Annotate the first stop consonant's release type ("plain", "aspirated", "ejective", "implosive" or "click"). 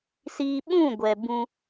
implosive